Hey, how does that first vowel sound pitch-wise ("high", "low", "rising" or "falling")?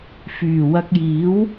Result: low